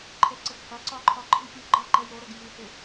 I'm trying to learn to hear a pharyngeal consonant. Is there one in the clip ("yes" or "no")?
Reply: no